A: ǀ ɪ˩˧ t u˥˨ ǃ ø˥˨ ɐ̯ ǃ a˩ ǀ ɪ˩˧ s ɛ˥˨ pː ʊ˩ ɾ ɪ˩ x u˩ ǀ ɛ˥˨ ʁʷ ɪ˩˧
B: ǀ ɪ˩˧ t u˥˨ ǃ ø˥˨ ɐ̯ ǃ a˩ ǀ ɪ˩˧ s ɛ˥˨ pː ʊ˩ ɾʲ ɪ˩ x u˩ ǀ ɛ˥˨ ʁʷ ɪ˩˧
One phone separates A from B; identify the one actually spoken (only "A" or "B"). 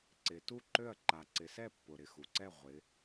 A